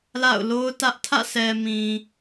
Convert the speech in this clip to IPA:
l a̰˦˨ ʊ̯ l o˦ ʊ̯ t ä˦ ʔ tʰ ä̰˦˨ sʰ ɛ˨ m ĩ˨

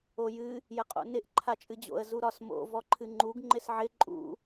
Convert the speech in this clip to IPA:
o j ɨ | j ə qʼ o̰ n ɪ ʔ ǃʰ a t͡ʃʼ ɨ d͡ʑ o̰ ə̯ z u ɾ ɒ s m o̰ v ɔ ǃʰ ɨ ŋ͡ǃ u ɡ ŋ͡ǃ ɪ s ʕ ɪ ǃʼ ṵ

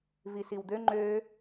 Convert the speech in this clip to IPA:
v i s i w d̪ ø ŋ͡ǃ ø

